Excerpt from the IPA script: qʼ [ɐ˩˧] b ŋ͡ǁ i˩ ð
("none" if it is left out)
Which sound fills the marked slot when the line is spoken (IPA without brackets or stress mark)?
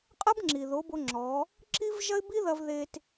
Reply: ɐ˥